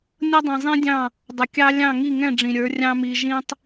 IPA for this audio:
nʲ ʌ˦ dˤ ĩ˨ zˤ ĩ˦ dʲ ɑ̃˦˨ | dˤ ʊ˨ kʲ ɑ˦ lʲ ɑ̃˦˨ ŋ i˦˨ ŋ ɛ̃˦˨ ɖ͡ʐ ĩ˨ ɾʲ ə˞˨˦ rʲ ɑ̃˦ m i˧ ʒ ĩ˦ tˤ

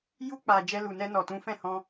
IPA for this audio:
j u˧ k͡p a˨ d͡ʒ ɛ˧ l u˨ n ɛ˧ n ɔ˨ t ũ˨˦ f ɛ̃˦˨ h ɔ̃˧

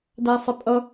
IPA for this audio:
d æ sˤ ɪ pʼ ʌ

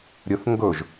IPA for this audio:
ɾʲ ɵ θ ŋ ɡ ɵ ʒ

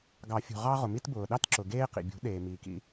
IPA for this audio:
ɡ ɑ˨˩˦ fʲ ṳ˩ ʁ ɑ˦ ʁ ʊ˩ m i˦ t b ʊː˩ ɗ ɑ˦ t ǁ ʊ˩ ɡ eː˦ q ḭ˩ bʲ ṳ˨˩˦ ɗ eː˩ m iː˩ k ḭ˨˩˦

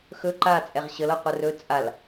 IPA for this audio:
x ɵ ǃ a t͡sʼ ɛ ʁ ɕ ə l ɤ qʷ ə r ɵ t͡sʼ a l

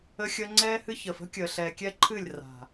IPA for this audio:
ə˧ xʲ əː˧ ŋ͡ǀ ɛː˧ h ɨ˧ ç əː˨ f ə̤˦ kʲ əː˨ ɬ ɛː˨ kʲ ɛː˧ ǃʰ ɨː˦˨ lʲ r a̤˨

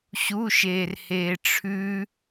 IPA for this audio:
ɕ u ʃ eː r h eː ʈ͡ʂʰ ʉ

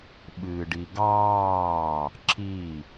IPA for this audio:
ɓ ɨː ɖ i ɡ ɑː | ǁ i

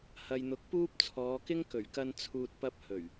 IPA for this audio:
h ɐ˨ j n̪ ʊ˨˥ k̚ p uː˥ p̚ t͡sʰ ɔː˨˧ k ɪ˥ ŋ k ɵ˨˩ ɥ k ɐ˧ n t͡sʰ uː˨ t̚ p ɐ˧ p̚ h ɵ˨˩ ɥ

